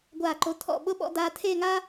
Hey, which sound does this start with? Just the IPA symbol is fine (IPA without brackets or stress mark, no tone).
ɡʷ